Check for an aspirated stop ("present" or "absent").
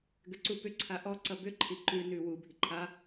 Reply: present